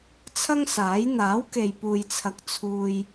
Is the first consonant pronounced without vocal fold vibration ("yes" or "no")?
yes